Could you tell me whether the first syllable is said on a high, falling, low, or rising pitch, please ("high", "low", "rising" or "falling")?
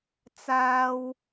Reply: high